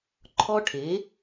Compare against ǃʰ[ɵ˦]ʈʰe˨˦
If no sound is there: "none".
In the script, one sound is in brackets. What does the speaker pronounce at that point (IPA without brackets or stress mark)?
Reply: ɔ˦